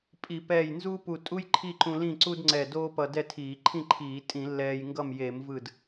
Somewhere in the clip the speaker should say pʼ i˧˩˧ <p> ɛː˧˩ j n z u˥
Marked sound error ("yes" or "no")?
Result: no